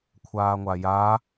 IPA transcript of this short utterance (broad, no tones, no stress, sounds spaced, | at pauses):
kʷʰ aː ŋʷ a j a